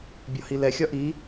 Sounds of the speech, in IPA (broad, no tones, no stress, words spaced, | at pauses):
bʲɒhilɛ xʲɒʔi